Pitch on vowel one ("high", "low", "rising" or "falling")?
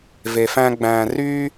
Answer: low